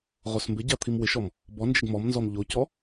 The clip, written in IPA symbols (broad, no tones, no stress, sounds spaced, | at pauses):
ʁ o s m b ɪ ɟ a t̪ʰ i m w ɪ ʃ ɔ m | b ɔ n d͡ʒ ɪ ɡ m ɔ m n z ɔ m ʎ o c ɔ